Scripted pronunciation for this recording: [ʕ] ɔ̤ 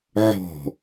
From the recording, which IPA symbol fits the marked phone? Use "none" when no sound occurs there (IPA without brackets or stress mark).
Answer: ʕ